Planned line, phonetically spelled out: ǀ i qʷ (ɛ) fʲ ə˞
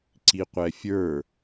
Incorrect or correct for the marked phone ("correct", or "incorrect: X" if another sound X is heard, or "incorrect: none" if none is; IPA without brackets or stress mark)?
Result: correct